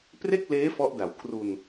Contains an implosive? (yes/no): no